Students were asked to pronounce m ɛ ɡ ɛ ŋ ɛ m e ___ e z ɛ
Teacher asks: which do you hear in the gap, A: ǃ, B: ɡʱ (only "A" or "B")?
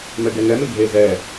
B